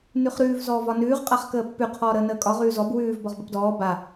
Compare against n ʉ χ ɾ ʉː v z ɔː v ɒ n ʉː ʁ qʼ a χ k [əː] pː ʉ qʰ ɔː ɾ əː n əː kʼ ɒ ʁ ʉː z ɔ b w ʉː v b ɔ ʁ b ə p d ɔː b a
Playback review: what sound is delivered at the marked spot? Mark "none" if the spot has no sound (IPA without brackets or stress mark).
əː